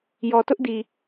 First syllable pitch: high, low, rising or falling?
low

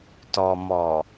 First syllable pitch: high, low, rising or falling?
low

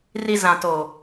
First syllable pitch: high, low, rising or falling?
low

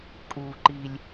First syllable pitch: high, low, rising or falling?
low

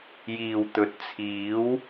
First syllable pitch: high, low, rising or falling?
low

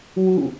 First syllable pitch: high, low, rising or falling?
falling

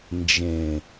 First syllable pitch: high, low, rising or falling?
low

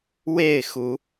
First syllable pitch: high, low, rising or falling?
falling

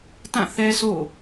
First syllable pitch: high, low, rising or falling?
falling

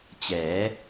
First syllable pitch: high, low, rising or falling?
rising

